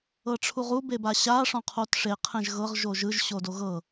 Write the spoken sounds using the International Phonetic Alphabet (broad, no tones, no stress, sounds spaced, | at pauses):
ɤ ʈ͡ʂʰ u ʁ u b e b a ɕ a ʂ ɔ̃ qʰ o t ʂ e qʰ ɛ̃ ʒ ɣ ɤ ʁ ʒ o ʒ ɯ ʒ ɕ o d o ɣ ɤ